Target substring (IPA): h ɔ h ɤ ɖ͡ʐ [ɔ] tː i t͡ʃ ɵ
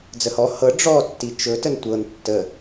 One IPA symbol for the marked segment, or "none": ɔ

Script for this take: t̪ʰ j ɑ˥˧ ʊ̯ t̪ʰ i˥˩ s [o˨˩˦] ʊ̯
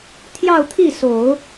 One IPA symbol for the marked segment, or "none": o˨˩˦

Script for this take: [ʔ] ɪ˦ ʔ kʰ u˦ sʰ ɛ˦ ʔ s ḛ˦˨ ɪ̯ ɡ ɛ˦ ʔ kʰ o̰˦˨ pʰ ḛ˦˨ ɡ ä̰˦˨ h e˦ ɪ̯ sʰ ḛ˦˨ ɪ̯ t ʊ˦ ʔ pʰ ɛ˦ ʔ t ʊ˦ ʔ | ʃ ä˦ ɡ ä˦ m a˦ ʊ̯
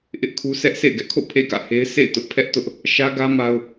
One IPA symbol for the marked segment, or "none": ʔ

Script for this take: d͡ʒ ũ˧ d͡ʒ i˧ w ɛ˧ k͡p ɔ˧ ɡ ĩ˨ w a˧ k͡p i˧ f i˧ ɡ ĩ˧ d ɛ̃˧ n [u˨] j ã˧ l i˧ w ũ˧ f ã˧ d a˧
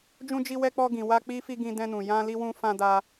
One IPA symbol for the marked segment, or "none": ũ˨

